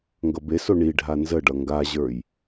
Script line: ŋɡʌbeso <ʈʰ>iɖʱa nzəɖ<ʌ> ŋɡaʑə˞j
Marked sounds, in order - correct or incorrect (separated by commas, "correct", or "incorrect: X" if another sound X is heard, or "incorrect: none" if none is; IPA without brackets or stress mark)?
incorrect: ɳ, correct